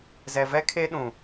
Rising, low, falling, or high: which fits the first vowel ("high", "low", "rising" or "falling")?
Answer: low